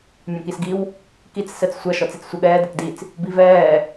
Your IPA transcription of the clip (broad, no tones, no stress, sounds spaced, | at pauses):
mʲ ɔ̃ k i s ɡ i w | k i t͡s s ɛ t͡s sʷ ɐ ʃ ɔ t͡s i t͡s sʷ ɤ ɠ ɛː d ɤ t d i t͡s | b i v ɛː